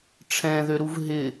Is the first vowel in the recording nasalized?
yes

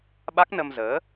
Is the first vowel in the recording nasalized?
no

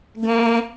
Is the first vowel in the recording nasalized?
yes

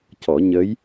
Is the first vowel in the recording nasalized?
no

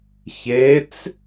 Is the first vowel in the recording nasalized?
no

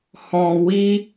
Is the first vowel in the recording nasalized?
yes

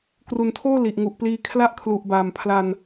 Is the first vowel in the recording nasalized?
no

